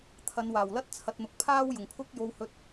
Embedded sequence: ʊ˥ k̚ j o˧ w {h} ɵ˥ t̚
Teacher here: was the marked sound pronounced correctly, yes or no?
yes